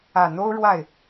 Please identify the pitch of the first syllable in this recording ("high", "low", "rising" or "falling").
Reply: low